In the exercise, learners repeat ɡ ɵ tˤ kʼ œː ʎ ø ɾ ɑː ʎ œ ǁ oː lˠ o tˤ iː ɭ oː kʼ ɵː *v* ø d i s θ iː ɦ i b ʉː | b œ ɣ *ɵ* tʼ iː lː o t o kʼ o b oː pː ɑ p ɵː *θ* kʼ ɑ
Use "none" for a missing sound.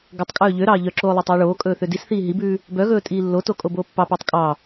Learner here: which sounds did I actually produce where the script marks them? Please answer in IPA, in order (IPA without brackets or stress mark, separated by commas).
θ, ɵː, tˤ